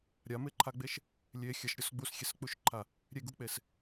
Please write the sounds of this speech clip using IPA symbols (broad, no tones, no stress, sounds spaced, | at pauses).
ɾʲ a m e ǃʰ a ɡ͡b e ʃ | lʲ e xʲ ɐ ʃ ɾʲ ɔ s ɡ͡b u s xʲ e s k͡p u ʃ ǃʰ a | ɾʲ e ɡ u k͡p e s